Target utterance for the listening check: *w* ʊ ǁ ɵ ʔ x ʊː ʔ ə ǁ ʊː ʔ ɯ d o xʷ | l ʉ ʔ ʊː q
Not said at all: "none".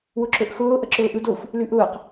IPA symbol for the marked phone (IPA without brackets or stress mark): w